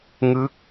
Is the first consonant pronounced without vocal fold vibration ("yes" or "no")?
no